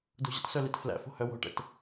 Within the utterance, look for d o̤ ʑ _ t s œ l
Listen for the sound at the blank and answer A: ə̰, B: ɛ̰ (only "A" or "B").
A